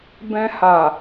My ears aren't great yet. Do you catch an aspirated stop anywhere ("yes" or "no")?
no